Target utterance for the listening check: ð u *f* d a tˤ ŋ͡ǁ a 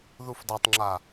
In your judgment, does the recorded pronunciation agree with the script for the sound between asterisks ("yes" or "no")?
yes